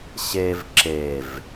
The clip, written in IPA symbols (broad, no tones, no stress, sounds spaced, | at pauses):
ɕ e v ǁ e v